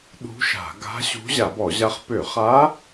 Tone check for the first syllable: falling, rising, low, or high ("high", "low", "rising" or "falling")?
rising